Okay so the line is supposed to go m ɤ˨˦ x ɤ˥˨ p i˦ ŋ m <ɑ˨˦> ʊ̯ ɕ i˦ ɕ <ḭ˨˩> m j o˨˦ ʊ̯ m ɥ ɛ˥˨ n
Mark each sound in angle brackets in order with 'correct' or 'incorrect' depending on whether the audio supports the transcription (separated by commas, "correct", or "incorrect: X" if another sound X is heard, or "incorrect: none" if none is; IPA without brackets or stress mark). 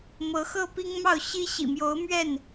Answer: incorrect: ɑ˥˨, correct